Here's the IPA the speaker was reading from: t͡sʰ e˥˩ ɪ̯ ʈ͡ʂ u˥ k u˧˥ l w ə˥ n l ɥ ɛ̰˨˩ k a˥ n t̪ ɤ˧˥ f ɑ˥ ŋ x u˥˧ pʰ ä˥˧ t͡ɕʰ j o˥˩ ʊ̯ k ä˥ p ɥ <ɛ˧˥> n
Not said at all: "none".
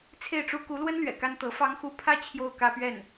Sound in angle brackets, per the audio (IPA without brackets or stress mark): ɛ˥˩